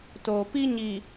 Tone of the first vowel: low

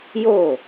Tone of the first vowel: falling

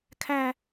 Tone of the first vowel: high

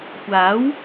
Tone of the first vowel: rising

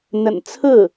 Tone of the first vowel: low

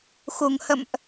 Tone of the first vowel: low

